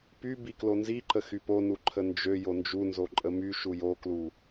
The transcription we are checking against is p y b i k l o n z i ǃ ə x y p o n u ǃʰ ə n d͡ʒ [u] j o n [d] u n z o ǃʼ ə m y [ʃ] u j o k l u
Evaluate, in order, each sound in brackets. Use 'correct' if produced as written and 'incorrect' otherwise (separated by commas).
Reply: incorrect, incorrect, correct